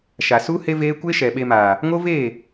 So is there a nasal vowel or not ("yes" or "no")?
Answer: no